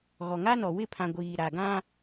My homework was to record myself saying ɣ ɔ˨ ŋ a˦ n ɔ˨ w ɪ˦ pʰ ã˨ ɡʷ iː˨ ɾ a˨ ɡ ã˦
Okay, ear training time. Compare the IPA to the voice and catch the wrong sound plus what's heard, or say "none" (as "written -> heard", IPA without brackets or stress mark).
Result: ɪ˦ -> ɪ˦˨